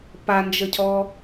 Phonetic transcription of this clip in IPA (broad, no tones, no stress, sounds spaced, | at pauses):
p a n d͡ʒ ə cʰ ɔ